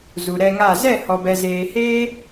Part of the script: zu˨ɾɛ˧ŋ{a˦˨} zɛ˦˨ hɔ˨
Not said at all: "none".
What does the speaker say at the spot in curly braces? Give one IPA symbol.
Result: a˦˨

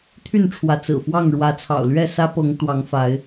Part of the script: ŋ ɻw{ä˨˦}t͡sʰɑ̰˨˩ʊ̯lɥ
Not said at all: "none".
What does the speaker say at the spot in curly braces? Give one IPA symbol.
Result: ä˨˦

